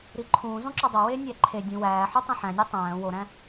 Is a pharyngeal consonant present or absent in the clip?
present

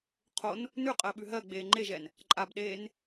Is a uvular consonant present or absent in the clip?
present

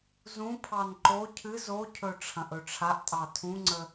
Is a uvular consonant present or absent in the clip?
absent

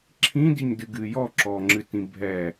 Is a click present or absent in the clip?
present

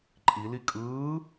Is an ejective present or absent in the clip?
present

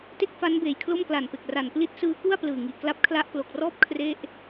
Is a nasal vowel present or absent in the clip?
absent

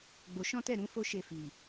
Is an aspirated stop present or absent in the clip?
absent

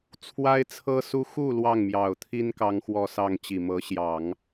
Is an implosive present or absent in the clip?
absent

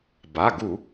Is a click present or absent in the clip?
absent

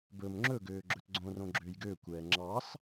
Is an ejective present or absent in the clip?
absent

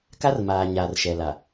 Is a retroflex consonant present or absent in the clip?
absent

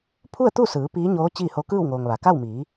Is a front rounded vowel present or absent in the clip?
absent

